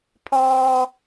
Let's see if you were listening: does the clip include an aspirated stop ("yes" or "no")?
yes